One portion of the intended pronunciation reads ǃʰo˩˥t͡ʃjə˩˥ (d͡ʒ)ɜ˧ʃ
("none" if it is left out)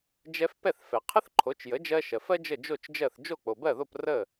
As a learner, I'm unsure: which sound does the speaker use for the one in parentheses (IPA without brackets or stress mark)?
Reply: d͡ʒ